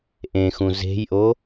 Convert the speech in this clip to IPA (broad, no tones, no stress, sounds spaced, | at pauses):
ʔ ẽ x ũ z e̤ j ʔ o